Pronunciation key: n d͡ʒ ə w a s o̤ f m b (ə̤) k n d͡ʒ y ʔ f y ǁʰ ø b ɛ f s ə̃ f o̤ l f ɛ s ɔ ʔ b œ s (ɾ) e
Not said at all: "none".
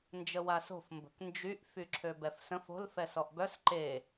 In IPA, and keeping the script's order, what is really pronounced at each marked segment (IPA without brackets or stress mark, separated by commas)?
ə̤, ǃ